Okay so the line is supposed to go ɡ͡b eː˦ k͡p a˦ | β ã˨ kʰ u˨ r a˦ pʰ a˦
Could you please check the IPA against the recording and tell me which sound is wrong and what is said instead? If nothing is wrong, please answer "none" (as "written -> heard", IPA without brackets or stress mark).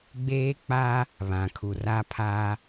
none